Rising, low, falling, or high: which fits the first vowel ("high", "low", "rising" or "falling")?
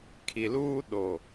low